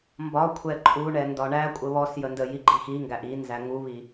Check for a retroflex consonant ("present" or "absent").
present